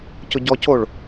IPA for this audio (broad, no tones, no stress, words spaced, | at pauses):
cʊɟɔcoɭ